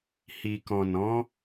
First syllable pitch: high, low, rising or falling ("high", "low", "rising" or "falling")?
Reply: low